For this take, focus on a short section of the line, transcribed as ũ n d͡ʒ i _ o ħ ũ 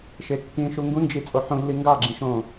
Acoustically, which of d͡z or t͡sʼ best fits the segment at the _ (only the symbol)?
t͡sʼ